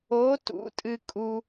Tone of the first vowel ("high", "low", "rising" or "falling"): rising